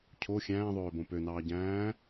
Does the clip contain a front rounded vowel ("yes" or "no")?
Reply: yes